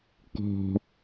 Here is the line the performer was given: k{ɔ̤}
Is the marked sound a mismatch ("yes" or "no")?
no